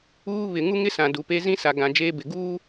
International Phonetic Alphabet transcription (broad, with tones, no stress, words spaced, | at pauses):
uː˦ βɪ˨ ŋu˦ŋɪ˦sã˨ du˨pe˦ zĩ˦sa˨ ɡã˨ d͡ʒeː˦bɪ˨ ɡuː˦